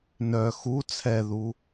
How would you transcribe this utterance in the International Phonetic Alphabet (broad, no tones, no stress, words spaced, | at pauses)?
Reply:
nœ xu t͡sʰɛðu